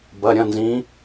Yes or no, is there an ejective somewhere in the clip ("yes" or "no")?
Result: no